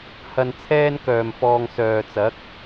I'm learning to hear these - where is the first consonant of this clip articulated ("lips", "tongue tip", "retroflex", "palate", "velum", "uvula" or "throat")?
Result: throat